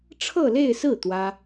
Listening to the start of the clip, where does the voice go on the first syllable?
falling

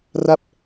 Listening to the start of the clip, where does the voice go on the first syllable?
falling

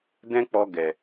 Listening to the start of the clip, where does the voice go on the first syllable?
high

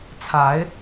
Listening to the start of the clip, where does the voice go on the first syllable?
rising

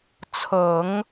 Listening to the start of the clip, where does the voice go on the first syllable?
low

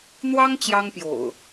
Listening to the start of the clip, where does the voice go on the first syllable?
high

